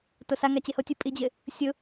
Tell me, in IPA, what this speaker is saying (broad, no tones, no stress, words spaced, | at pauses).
tosaŋa t͡ɕehotʲu pʼid͡ʑɪ | sʲʊ